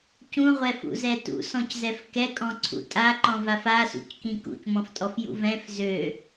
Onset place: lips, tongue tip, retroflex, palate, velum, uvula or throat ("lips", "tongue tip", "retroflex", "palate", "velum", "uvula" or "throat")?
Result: palate